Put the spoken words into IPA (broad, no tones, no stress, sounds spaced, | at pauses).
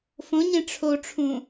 f õ ɲ ẽ ʈ͡ʂʰ o ʈ͡ʂʰ ũ